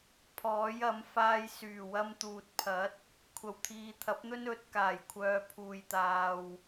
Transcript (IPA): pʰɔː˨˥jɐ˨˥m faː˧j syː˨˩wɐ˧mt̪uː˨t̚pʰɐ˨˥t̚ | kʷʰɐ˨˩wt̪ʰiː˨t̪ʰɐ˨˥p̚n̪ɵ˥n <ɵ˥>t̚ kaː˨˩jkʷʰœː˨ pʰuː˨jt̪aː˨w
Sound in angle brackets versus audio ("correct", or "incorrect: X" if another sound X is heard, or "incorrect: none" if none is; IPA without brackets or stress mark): incorrect: ɵ˨˥